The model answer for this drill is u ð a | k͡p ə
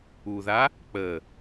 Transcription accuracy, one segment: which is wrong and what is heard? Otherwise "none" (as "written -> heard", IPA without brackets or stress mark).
none